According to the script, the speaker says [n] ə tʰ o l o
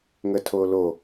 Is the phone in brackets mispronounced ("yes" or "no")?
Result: yes